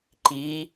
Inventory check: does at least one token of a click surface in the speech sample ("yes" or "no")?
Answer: yes